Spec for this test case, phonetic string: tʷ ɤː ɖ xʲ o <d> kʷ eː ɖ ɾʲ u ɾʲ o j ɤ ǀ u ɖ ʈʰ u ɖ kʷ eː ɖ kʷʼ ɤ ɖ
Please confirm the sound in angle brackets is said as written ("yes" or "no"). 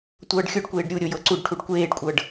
no